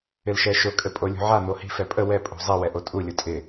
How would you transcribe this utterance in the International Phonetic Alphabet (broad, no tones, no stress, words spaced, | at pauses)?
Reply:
ɪlʃɛʃʊ kʼɘpʼolʲṳʕa n̪ohi̤ fɛpʼə wɛ pʼṳzˤi wɛʔotʼu lʲʊtʼɪ